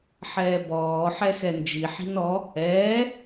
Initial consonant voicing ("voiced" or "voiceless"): voiceless